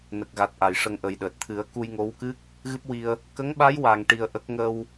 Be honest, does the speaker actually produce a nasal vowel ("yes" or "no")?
no